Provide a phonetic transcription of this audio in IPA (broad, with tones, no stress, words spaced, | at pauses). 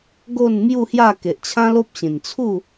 ɡo˥˧nmju˥˧hja˥˧ ke˨ʔt͡ɕʰã˦lo˦p̚ɕĩ˨˩n t͡sʰu˥˧